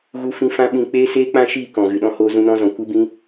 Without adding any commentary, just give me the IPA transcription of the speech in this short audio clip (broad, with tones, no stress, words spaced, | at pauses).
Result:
ɣu˦fĩ˦ fã˦ɓĩ˧ k͡peː˦ seː˦k͡pã˦ʃiː˦˨ kɔ̃˨ɣɨ˨ɗɔ̃˦hoː˧ zũ˧nɔ̃˧zɔ̃˨ kʷɨ˦bĩ˦